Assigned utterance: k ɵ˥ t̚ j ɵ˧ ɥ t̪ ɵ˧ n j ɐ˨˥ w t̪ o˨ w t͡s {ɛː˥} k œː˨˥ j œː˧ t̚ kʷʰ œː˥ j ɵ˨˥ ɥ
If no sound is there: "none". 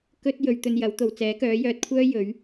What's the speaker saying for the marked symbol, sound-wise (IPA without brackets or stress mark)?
ɛː˨˥